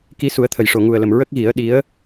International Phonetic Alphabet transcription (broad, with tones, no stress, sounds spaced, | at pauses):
k i˧ s u˨˩˦ ə̯ t̪ʰ ə˨˩ j ʂ o˨˩ ŋ u˨˩ ə̯ l ə˨˩ m ɹ ə˦˥ k̚ ɣ i˨˩˦ ə̯ ɗ i˧˥ ə̯